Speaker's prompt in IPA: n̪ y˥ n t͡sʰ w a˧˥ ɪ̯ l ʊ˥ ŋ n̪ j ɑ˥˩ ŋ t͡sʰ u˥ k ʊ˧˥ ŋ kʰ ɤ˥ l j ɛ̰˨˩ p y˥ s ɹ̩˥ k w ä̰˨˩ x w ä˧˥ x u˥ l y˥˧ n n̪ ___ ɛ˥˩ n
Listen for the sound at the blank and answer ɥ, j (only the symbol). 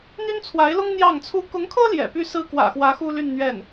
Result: ɥ